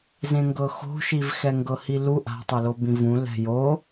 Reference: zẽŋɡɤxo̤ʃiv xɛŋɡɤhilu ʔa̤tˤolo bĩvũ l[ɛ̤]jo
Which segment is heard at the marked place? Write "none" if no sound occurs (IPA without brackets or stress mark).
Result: ɛ̤